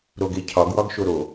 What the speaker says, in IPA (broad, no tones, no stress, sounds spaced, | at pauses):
ɾ o ɡ e cʰ ɒ ɡ w ɒ ɡ ʃ o ɾ o